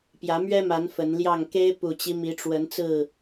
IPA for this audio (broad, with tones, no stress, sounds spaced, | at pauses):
p j ä˨˦ m ɥ ɛ˦ m a˨˦ n f ə˨˦ n l j ɑ˥˨ ŋ k e˦ ɪ̯ p u˨˩ t͡ɕ i˦ m i˨˦ ʈ͡ʂ w ə˨˦ n t͡s ɹ̩˥˨